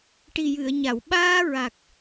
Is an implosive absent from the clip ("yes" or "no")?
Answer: no